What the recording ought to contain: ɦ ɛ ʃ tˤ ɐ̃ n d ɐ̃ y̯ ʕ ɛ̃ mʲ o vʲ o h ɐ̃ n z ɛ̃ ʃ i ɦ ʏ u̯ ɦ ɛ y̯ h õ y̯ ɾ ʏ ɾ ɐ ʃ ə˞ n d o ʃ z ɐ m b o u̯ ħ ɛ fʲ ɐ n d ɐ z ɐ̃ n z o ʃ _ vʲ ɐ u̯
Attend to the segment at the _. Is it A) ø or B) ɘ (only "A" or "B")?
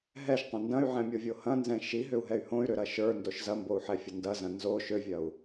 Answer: A